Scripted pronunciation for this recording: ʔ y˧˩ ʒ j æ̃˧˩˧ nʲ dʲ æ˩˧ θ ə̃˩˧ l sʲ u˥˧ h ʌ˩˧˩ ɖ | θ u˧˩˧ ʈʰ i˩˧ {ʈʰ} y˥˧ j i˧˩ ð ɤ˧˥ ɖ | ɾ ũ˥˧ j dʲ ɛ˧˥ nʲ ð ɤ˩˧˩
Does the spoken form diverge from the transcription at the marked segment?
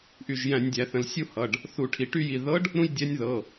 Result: yes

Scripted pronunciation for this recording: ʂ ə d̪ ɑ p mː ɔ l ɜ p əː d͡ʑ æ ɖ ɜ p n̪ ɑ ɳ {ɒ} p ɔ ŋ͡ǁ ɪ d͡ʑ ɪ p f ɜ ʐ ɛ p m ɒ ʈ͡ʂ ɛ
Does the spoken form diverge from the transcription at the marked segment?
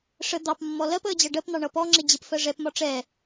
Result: yes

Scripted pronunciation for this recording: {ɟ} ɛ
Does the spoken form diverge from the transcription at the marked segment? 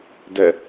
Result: yes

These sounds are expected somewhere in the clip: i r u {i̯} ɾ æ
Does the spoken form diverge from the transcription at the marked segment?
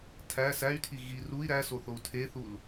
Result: no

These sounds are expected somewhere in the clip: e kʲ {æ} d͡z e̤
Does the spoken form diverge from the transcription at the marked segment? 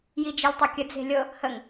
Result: yes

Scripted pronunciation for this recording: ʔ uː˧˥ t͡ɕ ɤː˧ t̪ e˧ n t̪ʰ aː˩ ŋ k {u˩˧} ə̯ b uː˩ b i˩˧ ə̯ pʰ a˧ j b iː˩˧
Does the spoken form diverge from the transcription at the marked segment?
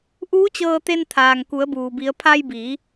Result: no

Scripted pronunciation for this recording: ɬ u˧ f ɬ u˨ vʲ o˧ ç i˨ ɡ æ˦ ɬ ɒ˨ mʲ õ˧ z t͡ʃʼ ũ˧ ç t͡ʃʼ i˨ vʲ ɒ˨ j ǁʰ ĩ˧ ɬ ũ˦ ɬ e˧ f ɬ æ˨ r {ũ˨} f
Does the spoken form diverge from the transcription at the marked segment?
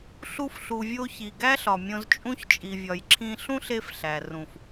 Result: no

